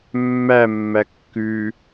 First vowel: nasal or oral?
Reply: oral